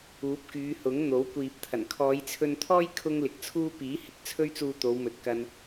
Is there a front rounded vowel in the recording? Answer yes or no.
yes